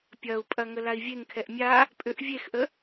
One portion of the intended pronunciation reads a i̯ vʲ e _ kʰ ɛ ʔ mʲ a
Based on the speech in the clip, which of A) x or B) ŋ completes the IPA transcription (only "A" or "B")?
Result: B